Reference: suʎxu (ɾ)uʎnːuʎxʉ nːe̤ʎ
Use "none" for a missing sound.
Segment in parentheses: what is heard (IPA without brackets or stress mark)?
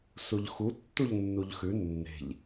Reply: tː